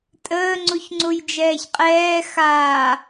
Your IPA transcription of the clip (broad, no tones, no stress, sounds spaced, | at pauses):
tʼ əː ŋ͡ǀ u ç ŋ͡ǀ u j d͡ʒ ɛː ç qʼ ɛː x aː